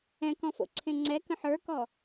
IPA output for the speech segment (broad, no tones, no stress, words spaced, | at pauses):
ɛ̃kɔ̃ fo̰ǀʰẽŋ͡ǀɛkə̃ ħə˞kɔ